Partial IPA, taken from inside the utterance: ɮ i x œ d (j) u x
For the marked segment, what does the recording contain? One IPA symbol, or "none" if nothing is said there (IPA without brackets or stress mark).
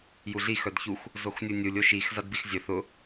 ç